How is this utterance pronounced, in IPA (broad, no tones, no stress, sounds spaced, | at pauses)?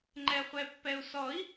ŋ͡ǃ ɛ χʷ ɛ pː ɛ u̯ s ɔ i̯